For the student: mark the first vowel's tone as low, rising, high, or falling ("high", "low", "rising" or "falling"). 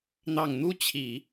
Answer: low